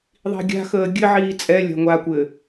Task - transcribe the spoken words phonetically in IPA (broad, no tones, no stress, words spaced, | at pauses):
ðˤi̤ɡʲa̤xəː ɡʲɘ ʕiːt͡sʼɛlʲa̤ ŋʷakʷɘ